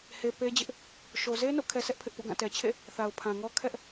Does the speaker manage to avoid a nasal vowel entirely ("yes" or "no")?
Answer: no